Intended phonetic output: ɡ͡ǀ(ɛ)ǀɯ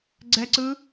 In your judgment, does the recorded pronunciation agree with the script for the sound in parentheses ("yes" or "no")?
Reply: yes